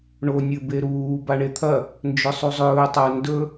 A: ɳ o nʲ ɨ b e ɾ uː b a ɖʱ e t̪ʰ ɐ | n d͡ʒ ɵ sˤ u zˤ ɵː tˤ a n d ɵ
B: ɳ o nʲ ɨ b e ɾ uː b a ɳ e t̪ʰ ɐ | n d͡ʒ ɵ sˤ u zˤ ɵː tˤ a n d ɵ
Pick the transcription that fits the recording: B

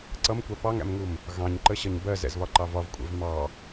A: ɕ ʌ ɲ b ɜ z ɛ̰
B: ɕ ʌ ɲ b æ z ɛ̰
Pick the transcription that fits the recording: A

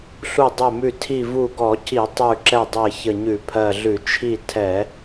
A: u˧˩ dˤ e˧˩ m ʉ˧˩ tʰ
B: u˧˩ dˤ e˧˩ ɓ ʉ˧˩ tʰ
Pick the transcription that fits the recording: A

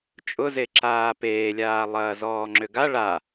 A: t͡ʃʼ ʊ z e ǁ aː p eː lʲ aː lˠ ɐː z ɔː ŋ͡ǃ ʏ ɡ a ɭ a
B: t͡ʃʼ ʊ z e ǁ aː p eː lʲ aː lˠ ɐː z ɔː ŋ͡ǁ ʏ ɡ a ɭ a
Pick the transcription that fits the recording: B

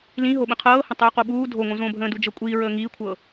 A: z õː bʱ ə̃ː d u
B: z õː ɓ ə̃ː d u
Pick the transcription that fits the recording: A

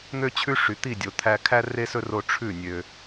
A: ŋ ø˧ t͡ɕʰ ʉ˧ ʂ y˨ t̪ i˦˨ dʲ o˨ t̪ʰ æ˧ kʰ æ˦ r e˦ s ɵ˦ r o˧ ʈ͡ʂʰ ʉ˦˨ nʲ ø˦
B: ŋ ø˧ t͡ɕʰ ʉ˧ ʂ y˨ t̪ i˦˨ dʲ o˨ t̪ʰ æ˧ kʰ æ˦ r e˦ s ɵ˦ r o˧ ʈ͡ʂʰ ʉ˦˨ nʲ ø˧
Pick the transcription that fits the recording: B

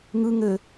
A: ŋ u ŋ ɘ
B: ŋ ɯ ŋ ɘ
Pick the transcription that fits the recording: B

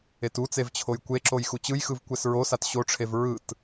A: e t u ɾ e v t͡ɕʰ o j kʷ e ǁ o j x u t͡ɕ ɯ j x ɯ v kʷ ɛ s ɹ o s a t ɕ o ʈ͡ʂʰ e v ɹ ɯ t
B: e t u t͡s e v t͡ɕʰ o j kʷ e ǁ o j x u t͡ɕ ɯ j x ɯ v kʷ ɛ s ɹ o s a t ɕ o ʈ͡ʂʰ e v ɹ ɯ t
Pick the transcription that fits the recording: B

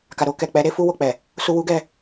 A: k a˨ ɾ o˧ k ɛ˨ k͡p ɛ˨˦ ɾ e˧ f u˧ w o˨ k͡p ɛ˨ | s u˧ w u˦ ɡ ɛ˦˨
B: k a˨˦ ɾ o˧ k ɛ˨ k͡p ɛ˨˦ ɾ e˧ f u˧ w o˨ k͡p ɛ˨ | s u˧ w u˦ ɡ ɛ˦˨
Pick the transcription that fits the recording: A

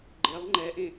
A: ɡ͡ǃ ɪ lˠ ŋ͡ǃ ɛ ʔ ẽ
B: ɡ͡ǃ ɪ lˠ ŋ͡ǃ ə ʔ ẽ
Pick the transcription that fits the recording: A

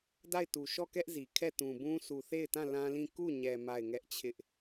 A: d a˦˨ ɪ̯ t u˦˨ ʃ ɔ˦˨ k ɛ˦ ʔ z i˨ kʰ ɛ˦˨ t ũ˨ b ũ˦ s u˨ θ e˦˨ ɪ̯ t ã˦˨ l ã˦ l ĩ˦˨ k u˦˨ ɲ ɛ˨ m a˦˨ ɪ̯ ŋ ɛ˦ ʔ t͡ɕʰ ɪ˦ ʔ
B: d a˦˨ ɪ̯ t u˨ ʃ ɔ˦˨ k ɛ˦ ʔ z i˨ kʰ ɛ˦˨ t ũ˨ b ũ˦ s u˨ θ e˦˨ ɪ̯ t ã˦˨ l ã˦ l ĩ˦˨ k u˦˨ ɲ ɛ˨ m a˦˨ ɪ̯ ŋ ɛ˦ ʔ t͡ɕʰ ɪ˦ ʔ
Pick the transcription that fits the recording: B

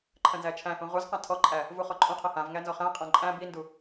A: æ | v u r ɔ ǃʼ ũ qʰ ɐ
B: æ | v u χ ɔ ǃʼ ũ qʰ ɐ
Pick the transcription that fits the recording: B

